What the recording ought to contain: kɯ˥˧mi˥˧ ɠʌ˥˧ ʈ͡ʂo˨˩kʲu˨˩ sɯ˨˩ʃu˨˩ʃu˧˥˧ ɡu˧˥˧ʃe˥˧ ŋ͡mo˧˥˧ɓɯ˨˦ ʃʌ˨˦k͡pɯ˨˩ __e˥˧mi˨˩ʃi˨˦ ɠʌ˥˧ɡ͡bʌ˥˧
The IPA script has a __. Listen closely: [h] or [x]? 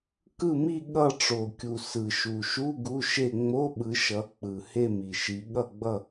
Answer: h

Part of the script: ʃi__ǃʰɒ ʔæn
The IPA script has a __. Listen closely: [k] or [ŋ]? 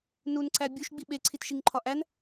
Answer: ŋ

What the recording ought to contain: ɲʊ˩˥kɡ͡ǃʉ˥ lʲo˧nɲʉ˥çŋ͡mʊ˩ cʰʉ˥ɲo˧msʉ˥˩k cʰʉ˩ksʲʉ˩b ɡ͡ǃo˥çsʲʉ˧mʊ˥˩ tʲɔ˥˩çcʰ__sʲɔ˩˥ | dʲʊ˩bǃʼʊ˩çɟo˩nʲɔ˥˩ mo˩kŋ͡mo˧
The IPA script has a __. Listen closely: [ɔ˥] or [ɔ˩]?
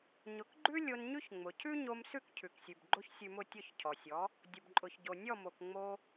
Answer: ɔ˩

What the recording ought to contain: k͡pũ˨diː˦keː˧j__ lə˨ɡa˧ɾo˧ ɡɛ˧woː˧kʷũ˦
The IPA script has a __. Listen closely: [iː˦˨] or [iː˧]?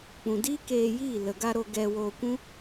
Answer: iː˦˨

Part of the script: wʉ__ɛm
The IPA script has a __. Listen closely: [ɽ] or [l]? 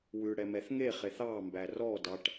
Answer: ɽ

